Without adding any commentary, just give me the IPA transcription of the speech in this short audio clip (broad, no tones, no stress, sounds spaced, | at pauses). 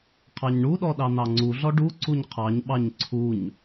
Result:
qʰ ɑ ɲ ɳ u ɗ ɔ ɗ ɑ n̪ ɑ ŋ͡ǀ u ɮ ɔ ɖ u ǀ u ɲ qʰ ɑ ɲ ɓ ɑ ɲ ǀʰ u ɲ